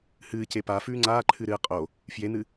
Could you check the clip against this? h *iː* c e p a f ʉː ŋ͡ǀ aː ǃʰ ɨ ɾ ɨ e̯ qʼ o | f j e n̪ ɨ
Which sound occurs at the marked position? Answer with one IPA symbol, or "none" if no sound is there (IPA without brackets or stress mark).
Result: ɨː